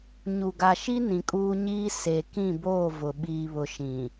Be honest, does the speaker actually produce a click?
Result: no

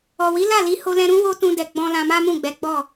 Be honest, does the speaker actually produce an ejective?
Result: no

